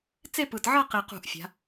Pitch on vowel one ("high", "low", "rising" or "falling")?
falling